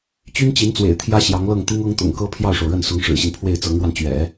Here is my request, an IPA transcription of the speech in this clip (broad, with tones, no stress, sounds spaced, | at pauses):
t͡ɕ y˥ n t͡ɕ i˧˥ n t͡s w ḛ˨˩ ɪ̯ t̪ʰ j ä˥ ɕ j ɑ˧˥ ŋ l ɤ˥˩ ŋ t̪ i˥ ŋ ɤ˥ ŋ t̪ ʊ̰˨˩ ŋ k ɤ˥ pʰ j ɑ˥˩ ʊ̯ ʂ o˩ ʊ̯ ɻ ə˥˩ n s ʊ˧˥ ŋ ʂ ɻ̩˨˩ ɕ i˦ n pʰ w e˥˩ ɪ̯ t͡s ɤ˧˥ ŋ ɻ w a˧ n t͡ɕ ɥ ɛ̰˨˩˦